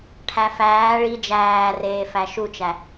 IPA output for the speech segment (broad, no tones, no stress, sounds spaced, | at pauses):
ʈʰ æ f æː ɭ i d͡ʒ æː r eː f æ ʃ u t͡ʃ æ